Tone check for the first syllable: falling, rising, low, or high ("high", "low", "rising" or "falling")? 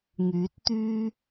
rising